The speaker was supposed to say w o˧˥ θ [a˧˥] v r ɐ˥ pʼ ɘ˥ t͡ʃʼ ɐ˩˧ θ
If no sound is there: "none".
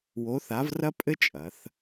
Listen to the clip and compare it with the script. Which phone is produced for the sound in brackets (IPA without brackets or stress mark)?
a˧˥